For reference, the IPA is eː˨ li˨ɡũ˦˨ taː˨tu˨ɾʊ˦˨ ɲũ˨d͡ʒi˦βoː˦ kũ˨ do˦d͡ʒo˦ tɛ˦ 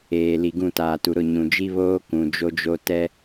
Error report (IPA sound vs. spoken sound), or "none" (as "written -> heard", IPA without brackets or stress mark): d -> d͡ʒ